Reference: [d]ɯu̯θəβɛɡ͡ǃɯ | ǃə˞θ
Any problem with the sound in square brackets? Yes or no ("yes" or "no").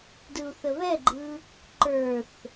no